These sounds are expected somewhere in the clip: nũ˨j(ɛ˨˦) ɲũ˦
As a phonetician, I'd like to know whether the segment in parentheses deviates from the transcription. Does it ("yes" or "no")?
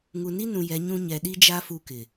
no